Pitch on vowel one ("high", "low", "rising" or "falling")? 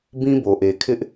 high